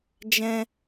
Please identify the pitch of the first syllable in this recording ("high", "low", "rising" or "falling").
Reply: high